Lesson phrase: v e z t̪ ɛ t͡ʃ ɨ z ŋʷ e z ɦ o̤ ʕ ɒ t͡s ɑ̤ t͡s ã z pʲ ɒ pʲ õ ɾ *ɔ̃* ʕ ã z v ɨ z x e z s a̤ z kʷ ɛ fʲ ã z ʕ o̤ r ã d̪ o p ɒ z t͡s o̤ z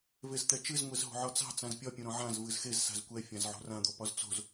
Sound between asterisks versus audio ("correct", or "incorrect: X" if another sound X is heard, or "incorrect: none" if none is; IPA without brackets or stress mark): correct